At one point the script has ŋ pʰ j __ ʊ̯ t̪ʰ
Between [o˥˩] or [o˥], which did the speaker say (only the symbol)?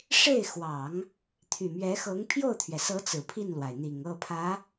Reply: o˥˩